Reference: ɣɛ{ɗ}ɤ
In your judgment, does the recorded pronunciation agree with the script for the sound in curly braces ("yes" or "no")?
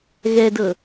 no